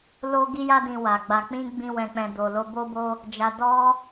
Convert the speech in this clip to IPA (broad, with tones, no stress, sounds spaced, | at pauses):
l o˦ ɡ i˦ j a˦ d ĩ˧ w a˨ ɡ͡b a˧ k͡p ĩ˦ ɡ͡b ĩ˧ w ɛ̃˨ k͡p ɛ̃˨ d o˨ l o˧ b o˦ b o˦ | d͡ʒ a˧ d ɔ˦